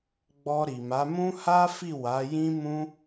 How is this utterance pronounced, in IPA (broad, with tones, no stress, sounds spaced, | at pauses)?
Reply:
ɡ͡b ɔ˧ ɾ i˨ m a˨˦ m ũ˦ h a˦ f i˦˨ w a˨˦ j ĩ˦ m ũ˦